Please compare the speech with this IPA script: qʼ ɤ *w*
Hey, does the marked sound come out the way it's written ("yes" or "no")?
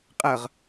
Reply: no